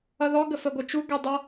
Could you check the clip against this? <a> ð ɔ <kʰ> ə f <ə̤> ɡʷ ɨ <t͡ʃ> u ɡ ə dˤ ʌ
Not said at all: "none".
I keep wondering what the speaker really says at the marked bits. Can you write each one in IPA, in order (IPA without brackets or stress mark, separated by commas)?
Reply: ʌ, ɡ, ə, t͡ʃ